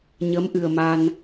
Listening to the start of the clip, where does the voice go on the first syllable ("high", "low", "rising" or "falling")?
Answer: rising